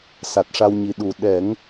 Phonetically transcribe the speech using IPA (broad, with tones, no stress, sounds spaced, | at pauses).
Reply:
s a˨˩ t̚ ʂ a˧ w ɲ i˨˩˦ ɗ u˨˩ ɗ ɛ˨˩˦ ŋ